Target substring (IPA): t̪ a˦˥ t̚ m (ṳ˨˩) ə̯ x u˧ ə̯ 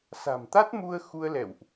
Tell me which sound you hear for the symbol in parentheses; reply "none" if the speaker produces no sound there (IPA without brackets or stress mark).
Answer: u˧